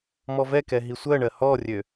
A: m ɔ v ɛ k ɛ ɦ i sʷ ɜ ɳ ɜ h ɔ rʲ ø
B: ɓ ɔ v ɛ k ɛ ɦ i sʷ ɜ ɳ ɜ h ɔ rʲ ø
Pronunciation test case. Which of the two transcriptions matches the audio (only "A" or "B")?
A